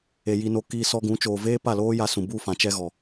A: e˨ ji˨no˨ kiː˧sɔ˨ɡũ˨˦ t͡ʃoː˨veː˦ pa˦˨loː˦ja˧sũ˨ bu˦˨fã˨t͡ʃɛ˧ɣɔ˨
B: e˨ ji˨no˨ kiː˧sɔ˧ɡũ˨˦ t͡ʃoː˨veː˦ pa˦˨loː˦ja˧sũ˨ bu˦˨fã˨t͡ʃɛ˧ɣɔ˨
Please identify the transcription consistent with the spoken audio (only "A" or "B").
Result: B